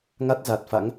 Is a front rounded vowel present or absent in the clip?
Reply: absent